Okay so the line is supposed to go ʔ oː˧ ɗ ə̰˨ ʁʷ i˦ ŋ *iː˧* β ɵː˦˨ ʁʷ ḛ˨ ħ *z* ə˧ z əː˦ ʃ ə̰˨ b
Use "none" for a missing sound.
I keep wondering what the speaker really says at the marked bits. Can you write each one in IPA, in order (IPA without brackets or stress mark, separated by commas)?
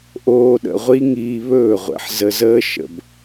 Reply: iː˧, z